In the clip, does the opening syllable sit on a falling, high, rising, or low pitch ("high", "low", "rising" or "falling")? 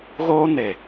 high